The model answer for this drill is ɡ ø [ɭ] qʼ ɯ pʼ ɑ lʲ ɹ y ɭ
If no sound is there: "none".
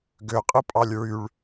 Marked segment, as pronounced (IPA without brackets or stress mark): none